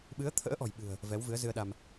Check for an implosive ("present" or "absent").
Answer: present